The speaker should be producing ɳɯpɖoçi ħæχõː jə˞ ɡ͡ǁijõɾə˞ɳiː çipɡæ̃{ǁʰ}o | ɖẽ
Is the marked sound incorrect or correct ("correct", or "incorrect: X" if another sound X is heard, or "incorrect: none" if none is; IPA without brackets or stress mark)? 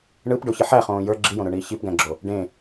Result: incorrect: ɡ͡ǁ